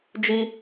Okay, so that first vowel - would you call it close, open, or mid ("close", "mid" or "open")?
close